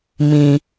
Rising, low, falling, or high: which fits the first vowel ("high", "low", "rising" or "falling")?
low